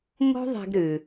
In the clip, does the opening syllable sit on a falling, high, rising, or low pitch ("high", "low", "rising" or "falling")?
high